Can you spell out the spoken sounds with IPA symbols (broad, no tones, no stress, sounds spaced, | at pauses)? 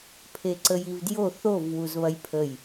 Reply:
pʰ e ǀ ə j i v d j o θ o v w u z β ɐ j pʰ ə j